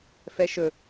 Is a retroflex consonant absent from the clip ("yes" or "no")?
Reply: yes